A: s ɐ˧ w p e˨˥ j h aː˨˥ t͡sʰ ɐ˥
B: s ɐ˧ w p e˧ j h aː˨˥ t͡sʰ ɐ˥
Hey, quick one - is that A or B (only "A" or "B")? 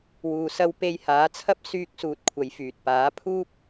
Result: B